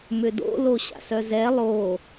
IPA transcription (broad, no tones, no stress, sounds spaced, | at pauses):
m ʏ d o̰ l o ɕ a̰ s œ z ɛ lˠ o